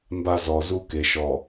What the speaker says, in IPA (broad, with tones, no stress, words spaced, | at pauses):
mba˦ zɔ˨zu˦ ke˨ʃɔ˨